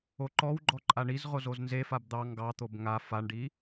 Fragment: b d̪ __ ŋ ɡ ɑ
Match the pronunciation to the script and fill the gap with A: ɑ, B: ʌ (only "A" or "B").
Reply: A